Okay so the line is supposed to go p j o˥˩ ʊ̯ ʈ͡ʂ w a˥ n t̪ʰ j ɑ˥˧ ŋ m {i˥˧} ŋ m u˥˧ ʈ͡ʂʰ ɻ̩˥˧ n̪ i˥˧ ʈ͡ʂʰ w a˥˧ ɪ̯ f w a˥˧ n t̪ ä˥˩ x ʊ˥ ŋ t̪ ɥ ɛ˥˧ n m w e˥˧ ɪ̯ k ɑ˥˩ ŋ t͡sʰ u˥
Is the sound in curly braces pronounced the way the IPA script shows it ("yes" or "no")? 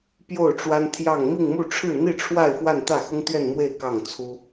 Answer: yes